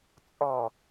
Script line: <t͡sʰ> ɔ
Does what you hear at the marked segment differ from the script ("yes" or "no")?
yes